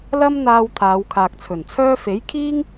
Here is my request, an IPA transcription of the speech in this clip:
lɐ˥mn̪aː˧w t̪ʰaː˨˧wkʰaː˨k̚t͡sʰɵ˨˩nt͡sʰœː˥ fe˨˥jkʰiː˥ŋ

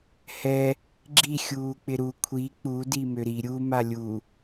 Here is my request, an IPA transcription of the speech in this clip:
hɛ | ɡ͡ǁi xʲuːk͡pɪɾu kʷʰi k͡pu dimøɾi ɾʲu malʲu

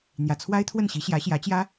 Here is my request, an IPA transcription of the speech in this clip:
n̪jä˨˩t͡sʰwa˥ɪ̯t̪ʰwə˥˩nɕi˧˥ ɕjä˧˥ɕjä˧˥t͡ɕjä˥

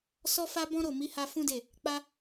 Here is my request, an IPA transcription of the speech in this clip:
sɔ˦fa˦bɔ̃˦ɾo˦˨ mi˨˦ha˧ fũ˦de˦˨ | k͡pa˦

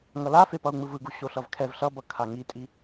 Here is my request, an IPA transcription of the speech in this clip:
ŋʌlafepʌu̯ ŋ͡mɯvɯɡu ɕoɬʌvkʰɛv ɬʌbʌ kʰaŋitʼi

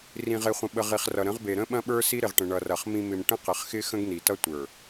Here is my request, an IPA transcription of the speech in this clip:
rĩ˨ʁe˨χʷə̃˨ɓə˨ ʁi˨χrʌ˨ɾə̃˨˦ʁbe˨ ɾə̃˦ɓɐ̃˦ɓə˞˦ si˦ɾɪ˨ʁʈə̃˨ ɳʌ˨rɐ˨χ mĩ˨mɪ˨m ʈə̃˦qɪ˨χxɪ˦ xə̃˦ɡni˨ tʌ˦tʷə˞˨

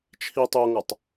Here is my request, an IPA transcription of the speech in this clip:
t͡ʃʰi tˤoŋatˤ

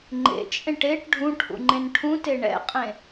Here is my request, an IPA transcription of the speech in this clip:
ŋ͡ǃḛt͡ʃʼẽʈ eʈ ɖʱũʈʰṵŋ͡ǃẽn ʈʰũte ɳɛ̰qʼẽ

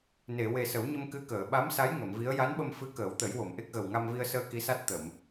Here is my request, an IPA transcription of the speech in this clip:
ne˨˩˨we˨˩sə˨˩˦wɲə˧m kɨ˧kəː˨˩˨ ɓa˧˥msa˧˥j ŋə˨˩˨mvi˧˥ə̯ ja˧˥nɓə˧mfɨ˧˥ kəː˨˩˦wt̪ə˨˩˦j wo˨˩˨mʔe˦˥k̚ɣə˨˩w ŋa˧mvi˧ə̯səː˧ ki˧˥sa˦˥t̚ t̪ə˨˩˨m

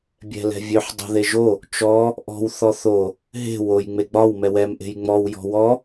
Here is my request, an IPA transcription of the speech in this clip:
bʲɛ̤lɛ̤vʲøħ dˤo̤ðeʒo | t͡ʃɔ | ʔɔ̤w θɔθo | ɦe̤ woj ŋ͡meɡ͡bɒw mɛwɛm ʔe̤jŋ͡mɔw jɔ̤wɔ

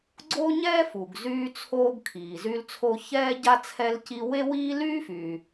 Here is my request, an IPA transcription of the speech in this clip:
ɡ͡ǀo˥ɲɛː˥fu˩ɡ zyː˥t͡sʰoː˥ɡ kʰiː˩zy˥lt͡sʰo˥ çɛː˥ɟa˥ t͡sʰɛ˥lci˥ we˥wiː˥ lyː˥fyː˩

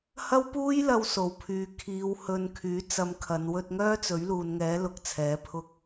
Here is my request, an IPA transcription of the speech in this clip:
hɐ˥wpuː˥jlɐ˧w so˨˩wpʰyː˨ kʰiː˨˧w hɵ˧nkʰyː˨˥t͡sɐ˧m kʰɐ˨˧n wɵ˧t̚ŋœː˥ t͡sɵ˨˥ɥluː˨nŋɛː˨˥ lʊ˧k̚t͡sʰɛː˨˥pʰʊ˥k̚

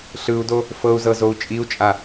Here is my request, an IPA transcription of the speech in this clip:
ɬɯu̯do | fɤu̯zɤzou̯ t͡ʃʼiu̯t͡ʃʼa

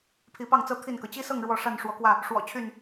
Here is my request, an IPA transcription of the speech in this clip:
pʰi˨˦pɑ˥˨ŋt͡sɤ˦ t̪ʰi˥˨nkɤ˩ t͡ɕi˦sɤ˥˨ŋ ɻwɔ˥˨ ʂa˥˨nʂwɔ˨˦kwä˥˨ | ʂwɔ̰˨˩ t͡ɕʰy˥˨n

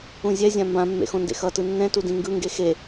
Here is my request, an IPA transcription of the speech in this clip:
ũzʲɛzʲã mbãmːḛ xõndḛxʌtɯ nːɛ̃ tudĩŋɡɯŋɡe xe

